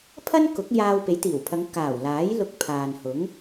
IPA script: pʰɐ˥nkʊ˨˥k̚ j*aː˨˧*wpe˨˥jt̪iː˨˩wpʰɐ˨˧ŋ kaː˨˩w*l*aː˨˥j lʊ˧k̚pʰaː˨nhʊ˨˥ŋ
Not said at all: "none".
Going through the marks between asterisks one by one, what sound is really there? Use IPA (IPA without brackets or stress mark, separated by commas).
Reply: aː˧, l